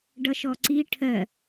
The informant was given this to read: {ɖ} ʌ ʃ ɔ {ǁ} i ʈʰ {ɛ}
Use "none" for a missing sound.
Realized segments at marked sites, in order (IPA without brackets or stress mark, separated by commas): ɖ, ǀ, ɜ